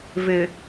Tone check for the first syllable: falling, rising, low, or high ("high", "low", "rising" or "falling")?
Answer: low